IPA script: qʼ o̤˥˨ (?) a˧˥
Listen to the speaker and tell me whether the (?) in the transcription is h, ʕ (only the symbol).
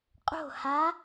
h